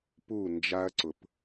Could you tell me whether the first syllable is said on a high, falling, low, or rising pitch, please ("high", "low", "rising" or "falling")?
falling